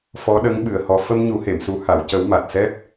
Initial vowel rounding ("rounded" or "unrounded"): rounded